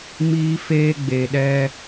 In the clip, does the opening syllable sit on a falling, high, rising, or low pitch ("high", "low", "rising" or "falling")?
high